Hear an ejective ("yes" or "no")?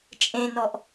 yes